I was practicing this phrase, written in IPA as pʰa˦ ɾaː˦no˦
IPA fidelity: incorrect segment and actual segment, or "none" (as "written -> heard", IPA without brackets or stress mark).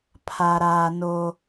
none